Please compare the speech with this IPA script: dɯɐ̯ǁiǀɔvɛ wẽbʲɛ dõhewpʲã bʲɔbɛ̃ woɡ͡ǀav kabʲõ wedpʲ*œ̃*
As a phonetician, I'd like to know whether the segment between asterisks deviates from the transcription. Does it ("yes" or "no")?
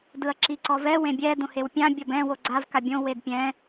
yes